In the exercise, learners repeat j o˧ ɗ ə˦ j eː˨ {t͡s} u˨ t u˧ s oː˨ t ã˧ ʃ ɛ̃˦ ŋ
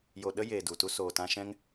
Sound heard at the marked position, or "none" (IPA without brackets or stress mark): d